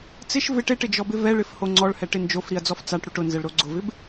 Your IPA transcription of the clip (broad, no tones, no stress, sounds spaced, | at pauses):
t͡s ɪ ʃ v ɪ ʈ e ʈ ɪ d͡ʒ ɔ b ɪ v ɛ ɭ ɪ f h o ŋ͡ǀ ɔ ɭ h ɛ ʈ ɪ n d͡ʒ o f ɾ i ɐ̯ d͡z ɔ f t͡s a ʈ ɽ u ʈ ʊ n z ɛ ɭ ɾ o ɡ͡ǀ ʊ v ɪ b